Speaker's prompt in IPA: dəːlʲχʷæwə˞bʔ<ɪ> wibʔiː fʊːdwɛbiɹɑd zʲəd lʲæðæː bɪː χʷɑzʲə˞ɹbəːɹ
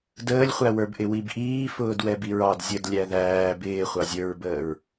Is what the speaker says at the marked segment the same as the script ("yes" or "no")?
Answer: yes